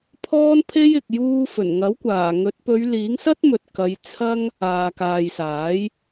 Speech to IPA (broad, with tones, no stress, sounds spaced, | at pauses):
pʰ ɔː˥ n pʰ e˥ j ɪ˨ k̚ j uː˧ f ɵ˨˩ n ŋ ɐ˨˥ w kʷ aː˨˩ ŋ ɵ˨˥ t̚ p ɵ˨˧ ɥ l iː˨˥ ŋ s ɐ˥ t̚ m ɵ˨ t̚ k ɐ˨˧ j t͡sʰ ɐ˥ ŋ | aː˨ k aː˨ j s aː˨˥ j